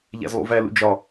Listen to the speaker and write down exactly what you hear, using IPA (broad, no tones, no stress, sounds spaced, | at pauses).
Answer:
ʎ æ̰ z lˠ ṵ v æ l ṵ d͡ʒ ɒ